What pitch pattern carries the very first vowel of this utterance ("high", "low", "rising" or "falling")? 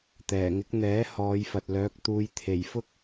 low